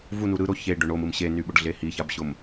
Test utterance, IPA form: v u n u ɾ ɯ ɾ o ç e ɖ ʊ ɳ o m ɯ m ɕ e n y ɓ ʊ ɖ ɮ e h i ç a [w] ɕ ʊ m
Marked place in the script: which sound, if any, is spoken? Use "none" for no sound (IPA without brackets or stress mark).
b